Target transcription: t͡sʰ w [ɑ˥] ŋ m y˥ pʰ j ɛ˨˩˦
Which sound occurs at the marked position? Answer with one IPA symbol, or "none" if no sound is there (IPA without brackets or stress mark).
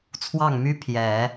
ɑ˥˩